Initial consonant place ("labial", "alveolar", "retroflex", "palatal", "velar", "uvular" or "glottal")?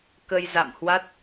velar